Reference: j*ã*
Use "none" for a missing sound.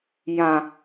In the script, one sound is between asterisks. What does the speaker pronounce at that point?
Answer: ã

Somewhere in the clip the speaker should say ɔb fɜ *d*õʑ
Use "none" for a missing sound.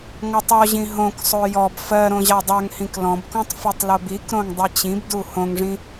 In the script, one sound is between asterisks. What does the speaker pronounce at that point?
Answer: ɾ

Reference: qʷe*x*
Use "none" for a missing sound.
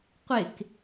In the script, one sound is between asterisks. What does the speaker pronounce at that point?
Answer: k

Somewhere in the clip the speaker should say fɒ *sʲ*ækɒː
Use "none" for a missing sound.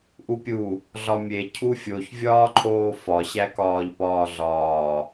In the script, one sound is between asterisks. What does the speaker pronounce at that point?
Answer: ɕ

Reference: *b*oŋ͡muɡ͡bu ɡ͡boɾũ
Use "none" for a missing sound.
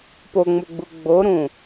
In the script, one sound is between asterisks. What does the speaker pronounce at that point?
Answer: p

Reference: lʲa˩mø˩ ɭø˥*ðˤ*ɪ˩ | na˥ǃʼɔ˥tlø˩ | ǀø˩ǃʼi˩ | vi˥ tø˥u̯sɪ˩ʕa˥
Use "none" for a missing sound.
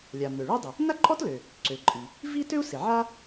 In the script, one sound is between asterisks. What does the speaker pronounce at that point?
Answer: dˤ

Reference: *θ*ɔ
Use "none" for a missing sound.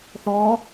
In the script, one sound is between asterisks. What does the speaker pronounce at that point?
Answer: θ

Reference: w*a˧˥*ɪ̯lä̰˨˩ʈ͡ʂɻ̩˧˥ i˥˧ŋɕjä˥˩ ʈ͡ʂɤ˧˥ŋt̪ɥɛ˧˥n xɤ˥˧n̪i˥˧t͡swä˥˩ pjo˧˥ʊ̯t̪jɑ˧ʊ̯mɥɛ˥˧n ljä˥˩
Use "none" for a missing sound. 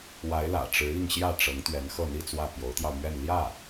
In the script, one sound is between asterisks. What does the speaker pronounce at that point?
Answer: a˧˥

